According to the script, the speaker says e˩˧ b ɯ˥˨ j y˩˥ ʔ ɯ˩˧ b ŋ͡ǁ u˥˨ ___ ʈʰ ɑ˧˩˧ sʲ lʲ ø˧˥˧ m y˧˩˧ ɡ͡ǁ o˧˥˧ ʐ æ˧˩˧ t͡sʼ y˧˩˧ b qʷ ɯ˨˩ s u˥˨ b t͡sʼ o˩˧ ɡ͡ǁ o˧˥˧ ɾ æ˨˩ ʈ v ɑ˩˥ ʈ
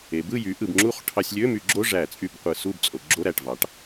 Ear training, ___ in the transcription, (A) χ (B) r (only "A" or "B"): A